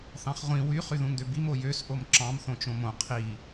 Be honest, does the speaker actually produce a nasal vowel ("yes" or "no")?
yes